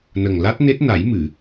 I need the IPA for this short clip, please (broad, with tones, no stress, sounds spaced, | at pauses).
n ə˨˩ ŋ l a˦˥ t̚ n e˦˥ t̚ n a˨˩˦ j m ɨ˨˩˨